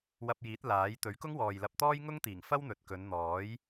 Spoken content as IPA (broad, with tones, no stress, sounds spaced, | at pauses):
w ɐ˧ p̚ j iː˨˥ t̚ l aː˨˥ j t̪ ɵ˨˥ ɥ k ʊ˥ ŋ w ɔː˨ j l ɐ˧ p̚ t̪ ɔː˥ j ŋ ʊ˥ ŋ t̪ iː˨˩ ŋ f ɐ˥ w n̪ ɵ˨ t̚ k ɵ˨˧ n n̪ ɔː˨˥ j